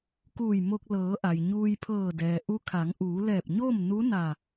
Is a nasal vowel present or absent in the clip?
absent